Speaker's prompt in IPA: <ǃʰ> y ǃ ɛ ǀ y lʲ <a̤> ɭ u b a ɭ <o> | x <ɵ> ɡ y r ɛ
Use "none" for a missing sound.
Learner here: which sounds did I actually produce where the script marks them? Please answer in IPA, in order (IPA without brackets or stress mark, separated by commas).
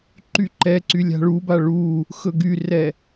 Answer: ǃ, a̤, u, ɵ